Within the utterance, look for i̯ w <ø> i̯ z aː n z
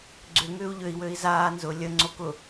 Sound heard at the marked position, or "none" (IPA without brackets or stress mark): ø